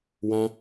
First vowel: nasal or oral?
nasal